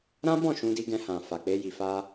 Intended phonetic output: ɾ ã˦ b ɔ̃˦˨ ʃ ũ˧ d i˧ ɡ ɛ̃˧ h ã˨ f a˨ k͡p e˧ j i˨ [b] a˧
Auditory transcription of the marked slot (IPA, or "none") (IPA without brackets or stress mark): f